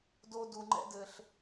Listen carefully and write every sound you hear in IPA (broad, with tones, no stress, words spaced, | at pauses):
do˧ du˨ŋ͡ǃɛ̰˦dɘ˧ɬ